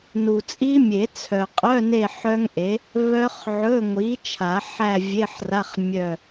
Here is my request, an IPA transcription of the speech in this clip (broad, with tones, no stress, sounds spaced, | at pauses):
n u˨ t͡sʼ i˦˥ mʲ e˨˩˦ t͡sʰ œ˨ qʼ œ˧˥˧ n e˦˨ ħ œ˦˥ ŋ ʔ e˨˥ | β œ˦˥ χ ʕ ɵ˧˥˧ ŋʷ i˨˥ t͡ʃʰ a˨˩˦ ħ æ˦˨ vʲ e˧˥˧ ħ r a˧˥˧ χ mʲ œ˦˨